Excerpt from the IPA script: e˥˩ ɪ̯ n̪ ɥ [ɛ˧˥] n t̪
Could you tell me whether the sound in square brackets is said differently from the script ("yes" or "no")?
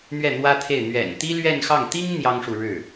yes